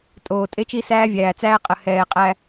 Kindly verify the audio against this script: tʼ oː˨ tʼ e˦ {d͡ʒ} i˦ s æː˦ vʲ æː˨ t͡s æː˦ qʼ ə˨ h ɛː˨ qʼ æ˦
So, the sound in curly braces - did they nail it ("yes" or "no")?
no